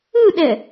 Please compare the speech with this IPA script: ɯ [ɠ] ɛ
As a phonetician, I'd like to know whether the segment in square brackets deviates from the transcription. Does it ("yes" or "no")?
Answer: yes